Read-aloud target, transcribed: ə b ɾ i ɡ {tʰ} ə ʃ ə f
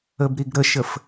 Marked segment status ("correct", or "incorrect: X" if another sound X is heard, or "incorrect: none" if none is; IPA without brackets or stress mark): incorrect: ɾ